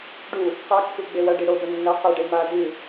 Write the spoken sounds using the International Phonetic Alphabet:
ɖu | qakːu ɡ͡bewɐɖi ɽobɵ nːɐ qeɖe ma dɨ

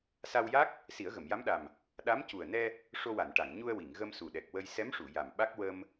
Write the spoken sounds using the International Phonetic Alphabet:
sa˧wja˦˥k̚ | si˨˩˦ə̯ɣə˨˩˨m ja˧˥mɗa˨˩m | ɗa˧˥mcu˨˩ə̯nɛ˧ | ʂo˧wa˨˩˨nʈa˨˩˨ŋ ɲu˧ə̯wi˨˩˨ŋɣə˧m su˨˩ɗɛ˨˩k̚wə˧j sɛ˧˥mʂu˨˩˨ ja˨˩mɓa˦˥k̚ wə˧m

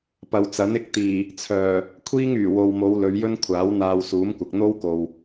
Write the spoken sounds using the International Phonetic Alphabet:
pɐ˨wt͡sɐ˨˥n ɪ˥k̚ t̪iː˨˩ | t͡sʰœː˨˩ | kʷʰiː˥ŋyː˨˩wo˨wmo˨˧w lɵ˨˧ɥjɵ˥nkʷʰaː˨˥w n̪aː˧wsuː˨˥mkʷɐ˨k̚ n̪o˥wko˨w

